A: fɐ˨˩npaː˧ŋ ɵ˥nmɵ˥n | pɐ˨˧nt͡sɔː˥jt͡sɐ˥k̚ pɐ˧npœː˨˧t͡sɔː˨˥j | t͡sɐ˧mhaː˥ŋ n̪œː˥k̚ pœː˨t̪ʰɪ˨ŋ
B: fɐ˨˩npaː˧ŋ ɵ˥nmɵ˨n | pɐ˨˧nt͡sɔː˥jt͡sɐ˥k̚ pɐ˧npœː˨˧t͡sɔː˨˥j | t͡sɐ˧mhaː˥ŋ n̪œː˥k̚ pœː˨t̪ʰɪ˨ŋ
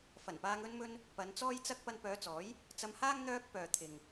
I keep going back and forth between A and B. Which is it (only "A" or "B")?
A